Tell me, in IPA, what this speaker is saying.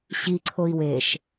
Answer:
ɕiǀʰoi̯ weʃ

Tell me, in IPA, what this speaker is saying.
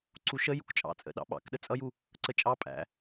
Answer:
ǀuʃə jṵkt͡ʃʼɑ̰t͡sʼə̰ ɗɑ̰ɓɑ̰kɗə t͡sʼʌju | ǀət͡ʃʼɑ pʼæ̰

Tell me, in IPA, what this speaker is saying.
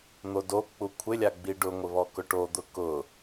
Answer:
n̪odok͡pu kʷʰɪlʲa ɡ͡biɖʊŋʷɪ βɔkʊʈod̪ʊ kʊ

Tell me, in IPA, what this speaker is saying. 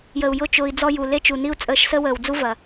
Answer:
jə˨u̯ jʊ˦˨t͡ʃʊː˧i̯ d͡zɔ˦ju˨ le˦t͡ʃu˨ni˦u̯ t͡sʼəː˧ʃsə˦wəː˨wd͡zu˦ vɐ˨

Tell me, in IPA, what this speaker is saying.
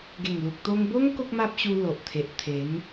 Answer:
ɡe˨˩ŋlu˨k̚t̪o˧ŋbo˦ŋ ko˦k̚ma˦p̚ɕu˧ lo˨ʔt̪ʰe˨ʔ t̪ʰe˨˦ŋ

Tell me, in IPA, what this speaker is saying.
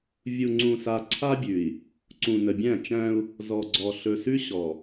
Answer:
vʲu˨ŋ͡ǀũ˨sa˨ ǀʰa˦bʲʉ˨i̯ | ǀũ˨nə˨bʲæ̃˦˨t͡ʃæ̃˦u̯ | zɔ˨ɡ͡ǀɔ˨ ɬɵ˨sʉ˦ɕɔ˨

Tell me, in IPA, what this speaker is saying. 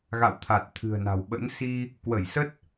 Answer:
ɣa̰˧˨wt̪ʰa˨˩t̚ t̪ʰɨ̤˨˩ə̯na̤˨˩wɓə̰˧˥n si˧ | kwə˧˩jsə˦˥t̚

